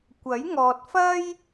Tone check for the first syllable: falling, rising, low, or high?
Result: rising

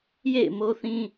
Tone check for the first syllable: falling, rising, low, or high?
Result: falling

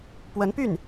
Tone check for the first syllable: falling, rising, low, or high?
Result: rising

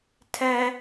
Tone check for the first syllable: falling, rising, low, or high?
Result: high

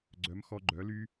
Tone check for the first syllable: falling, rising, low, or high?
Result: rising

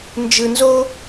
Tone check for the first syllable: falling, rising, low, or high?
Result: low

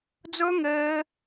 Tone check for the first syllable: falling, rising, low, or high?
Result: high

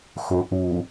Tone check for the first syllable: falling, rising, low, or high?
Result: low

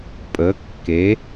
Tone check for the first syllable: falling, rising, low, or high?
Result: rising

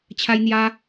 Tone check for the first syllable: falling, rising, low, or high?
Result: high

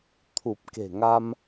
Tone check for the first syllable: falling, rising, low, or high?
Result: low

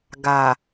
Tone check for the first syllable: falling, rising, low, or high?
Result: low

